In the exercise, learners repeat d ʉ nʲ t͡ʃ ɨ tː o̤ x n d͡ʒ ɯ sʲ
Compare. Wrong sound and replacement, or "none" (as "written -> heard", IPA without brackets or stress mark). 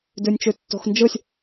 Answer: ɨ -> ʉ